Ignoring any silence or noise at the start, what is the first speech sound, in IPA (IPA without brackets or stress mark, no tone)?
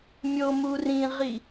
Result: mʲ